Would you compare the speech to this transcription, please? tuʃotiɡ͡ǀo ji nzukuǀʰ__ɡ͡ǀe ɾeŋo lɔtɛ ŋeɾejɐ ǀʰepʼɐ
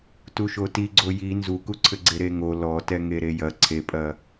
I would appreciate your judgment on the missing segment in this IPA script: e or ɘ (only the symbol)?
ɘ